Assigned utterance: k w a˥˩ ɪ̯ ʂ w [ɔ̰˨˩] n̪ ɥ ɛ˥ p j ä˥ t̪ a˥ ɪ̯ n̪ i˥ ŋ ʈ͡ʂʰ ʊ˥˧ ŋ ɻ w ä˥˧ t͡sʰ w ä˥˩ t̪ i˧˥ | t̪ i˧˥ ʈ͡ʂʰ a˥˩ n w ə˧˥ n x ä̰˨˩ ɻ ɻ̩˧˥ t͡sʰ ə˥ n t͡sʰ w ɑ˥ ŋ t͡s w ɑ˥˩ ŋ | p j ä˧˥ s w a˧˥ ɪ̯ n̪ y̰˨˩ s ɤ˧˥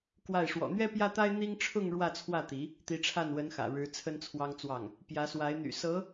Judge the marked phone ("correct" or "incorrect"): correct